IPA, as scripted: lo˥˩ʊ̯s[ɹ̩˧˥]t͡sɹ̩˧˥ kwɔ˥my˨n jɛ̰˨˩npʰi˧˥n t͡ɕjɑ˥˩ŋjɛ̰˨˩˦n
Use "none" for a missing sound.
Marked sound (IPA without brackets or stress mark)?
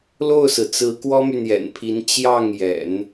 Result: ɹ̩˩